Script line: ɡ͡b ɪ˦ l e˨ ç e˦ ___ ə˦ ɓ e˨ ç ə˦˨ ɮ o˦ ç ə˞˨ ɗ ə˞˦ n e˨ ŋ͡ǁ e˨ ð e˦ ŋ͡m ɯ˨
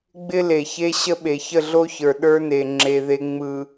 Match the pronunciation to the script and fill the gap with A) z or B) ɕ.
B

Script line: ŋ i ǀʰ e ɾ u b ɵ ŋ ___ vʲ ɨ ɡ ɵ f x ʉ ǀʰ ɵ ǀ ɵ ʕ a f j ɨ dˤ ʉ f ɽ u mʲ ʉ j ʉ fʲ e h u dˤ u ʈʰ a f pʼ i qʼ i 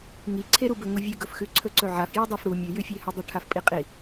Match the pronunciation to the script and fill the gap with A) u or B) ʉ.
A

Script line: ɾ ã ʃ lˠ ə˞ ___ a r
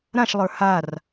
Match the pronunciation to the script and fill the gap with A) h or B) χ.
A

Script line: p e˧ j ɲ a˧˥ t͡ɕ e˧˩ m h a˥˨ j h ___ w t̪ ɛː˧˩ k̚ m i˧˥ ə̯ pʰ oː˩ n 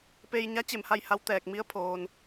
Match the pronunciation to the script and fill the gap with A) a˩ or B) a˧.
B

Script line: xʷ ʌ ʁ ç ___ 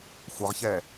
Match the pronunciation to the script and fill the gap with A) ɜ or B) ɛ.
B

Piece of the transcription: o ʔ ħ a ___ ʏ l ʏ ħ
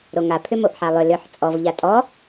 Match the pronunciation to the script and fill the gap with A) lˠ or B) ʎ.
A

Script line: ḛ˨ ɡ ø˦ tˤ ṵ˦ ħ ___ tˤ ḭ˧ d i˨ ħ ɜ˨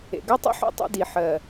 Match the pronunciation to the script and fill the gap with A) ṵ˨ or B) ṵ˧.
B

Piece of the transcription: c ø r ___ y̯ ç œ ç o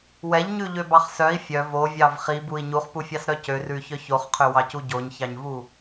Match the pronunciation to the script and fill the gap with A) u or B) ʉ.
B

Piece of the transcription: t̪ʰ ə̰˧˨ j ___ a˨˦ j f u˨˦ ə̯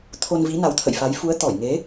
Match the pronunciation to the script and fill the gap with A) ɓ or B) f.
B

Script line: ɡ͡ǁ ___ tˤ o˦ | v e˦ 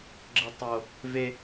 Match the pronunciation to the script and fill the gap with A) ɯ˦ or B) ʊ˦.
A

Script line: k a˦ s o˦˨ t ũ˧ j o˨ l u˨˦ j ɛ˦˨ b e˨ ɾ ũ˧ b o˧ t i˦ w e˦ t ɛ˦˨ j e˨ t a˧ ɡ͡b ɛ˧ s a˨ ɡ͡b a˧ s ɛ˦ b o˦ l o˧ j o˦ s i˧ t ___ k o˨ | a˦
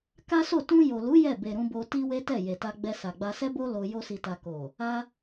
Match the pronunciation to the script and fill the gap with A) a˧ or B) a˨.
A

